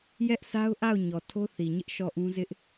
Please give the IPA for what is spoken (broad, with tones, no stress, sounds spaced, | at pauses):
j ɛ˦ ʔ s a˦ ʊ̯ ʔ a˦˨ ʊ̯ ɲ ɔ˨ tʰ o˦ θ i˨ ɲ ɪ˦ ʔ ʃ ɔ˦˨ ʔ ũ˦ z ɪ˦ ʔ